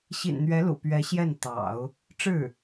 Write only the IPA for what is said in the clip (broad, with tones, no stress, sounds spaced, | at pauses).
ɕ ḭ˨˩ n n̪ ɥ ɛ˧˥ l ṵ˨˩ p ɥ ɛ˧˥ ɕ j ɛ˥˩ n t̪ ɑ̰˨˩˦ ʊ̯ | ʈ͡ʂ ɻ̩˥˩